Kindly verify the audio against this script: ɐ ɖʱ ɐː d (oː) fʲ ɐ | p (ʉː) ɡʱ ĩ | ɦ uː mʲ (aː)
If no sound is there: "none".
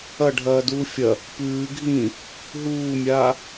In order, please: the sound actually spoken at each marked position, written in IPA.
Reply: uː, ʉː, aː

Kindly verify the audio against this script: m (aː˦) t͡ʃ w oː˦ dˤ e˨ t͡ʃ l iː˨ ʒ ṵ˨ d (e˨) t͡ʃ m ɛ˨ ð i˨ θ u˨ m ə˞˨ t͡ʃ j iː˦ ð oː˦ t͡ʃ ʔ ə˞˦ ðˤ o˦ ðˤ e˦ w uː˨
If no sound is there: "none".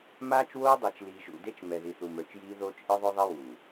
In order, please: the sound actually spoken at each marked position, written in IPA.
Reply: aː˦, e˦

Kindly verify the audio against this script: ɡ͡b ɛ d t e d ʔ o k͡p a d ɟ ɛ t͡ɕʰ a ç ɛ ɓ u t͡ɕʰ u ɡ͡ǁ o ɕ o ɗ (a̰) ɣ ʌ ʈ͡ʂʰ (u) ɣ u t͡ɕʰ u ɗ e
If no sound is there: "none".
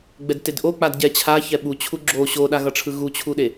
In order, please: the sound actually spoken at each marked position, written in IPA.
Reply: a, ɯ

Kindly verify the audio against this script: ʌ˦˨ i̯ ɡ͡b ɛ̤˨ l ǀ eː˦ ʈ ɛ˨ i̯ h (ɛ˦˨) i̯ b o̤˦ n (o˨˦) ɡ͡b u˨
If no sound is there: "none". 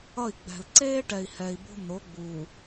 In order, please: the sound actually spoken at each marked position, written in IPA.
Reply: ɛ˨, o˨˦

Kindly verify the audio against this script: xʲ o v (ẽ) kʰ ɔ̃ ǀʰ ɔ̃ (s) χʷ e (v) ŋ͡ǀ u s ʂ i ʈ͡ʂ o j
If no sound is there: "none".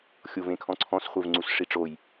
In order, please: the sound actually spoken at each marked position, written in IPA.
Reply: ẽ, s, v

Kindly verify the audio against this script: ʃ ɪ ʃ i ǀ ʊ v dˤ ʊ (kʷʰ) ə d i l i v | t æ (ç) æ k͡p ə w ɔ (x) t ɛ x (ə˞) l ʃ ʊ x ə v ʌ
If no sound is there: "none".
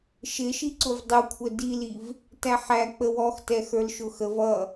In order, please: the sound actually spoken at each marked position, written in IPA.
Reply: kʷʰ, ħ, x, ə˞

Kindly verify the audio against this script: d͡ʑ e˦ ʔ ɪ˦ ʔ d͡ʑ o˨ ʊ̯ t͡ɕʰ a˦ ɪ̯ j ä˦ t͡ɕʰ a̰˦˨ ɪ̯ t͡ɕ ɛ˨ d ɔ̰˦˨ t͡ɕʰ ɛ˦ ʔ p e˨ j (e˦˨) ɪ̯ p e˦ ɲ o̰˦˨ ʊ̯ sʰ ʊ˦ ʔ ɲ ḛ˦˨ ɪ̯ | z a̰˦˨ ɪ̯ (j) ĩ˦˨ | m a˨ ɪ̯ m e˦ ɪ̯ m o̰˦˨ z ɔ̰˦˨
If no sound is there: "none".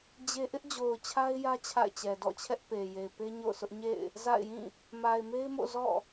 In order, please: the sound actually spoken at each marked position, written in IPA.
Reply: e˨, j

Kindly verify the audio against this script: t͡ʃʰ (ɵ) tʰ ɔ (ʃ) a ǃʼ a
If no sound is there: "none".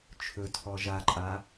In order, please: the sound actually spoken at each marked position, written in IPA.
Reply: ɵ, ʒ

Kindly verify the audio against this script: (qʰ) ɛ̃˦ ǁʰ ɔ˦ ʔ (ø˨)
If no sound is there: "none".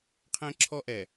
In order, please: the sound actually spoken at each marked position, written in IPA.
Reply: qʰ, ɛ˨

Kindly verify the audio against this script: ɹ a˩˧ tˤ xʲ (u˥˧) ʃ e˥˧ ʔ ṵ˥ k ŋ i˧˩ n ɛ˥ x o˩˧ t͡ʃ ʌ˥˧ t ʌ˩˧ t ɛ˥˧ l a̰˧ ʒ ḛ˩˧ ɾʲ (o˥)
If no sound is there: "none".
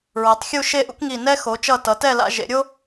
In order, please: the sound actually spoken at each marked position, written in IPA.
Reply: u˥˧, o˥

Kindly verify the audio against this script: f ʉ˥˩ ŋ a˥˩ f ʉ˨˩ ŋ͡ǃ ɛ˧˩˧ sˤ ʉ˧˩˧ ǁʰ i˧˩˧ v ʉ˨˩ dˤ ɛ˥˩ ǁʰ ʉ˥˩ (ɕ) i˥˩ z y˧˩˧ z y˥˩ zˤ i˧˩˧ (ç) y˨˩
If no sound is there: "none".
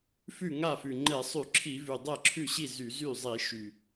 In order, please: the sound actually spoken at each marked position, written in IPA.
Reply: ɕ, ʃ

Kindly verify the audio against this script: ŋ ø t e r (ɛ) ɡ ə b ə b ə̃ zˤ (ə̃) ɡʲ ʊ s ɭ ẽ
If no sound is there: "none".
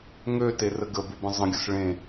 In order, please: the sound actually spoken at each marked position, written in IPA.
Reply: ə, ə̃

